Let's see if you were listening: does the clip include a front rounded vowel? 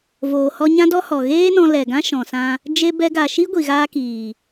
no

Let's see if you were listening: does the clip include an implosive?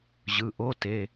no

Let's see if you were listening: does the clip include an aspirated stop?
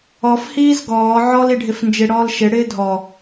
no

